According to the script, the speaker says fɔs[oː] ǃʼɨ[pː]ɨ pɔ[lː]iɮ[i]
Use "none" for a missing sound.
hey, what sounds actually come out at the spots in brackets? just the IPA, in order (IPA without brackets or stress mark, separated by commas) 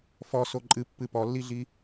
o, pː, lː, i